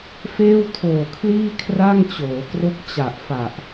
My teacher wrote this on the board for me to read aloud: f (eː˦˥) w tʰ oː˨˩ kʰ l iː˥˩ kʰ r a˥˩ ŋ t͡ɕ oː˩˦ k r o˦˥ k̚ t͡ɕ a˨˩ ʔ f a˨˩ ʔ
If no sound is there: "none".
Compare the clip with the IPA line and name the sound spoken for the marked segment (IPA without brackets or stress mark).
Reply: eː˥˩